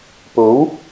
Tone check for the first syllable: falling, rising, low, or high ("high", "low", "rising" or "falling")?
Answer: rising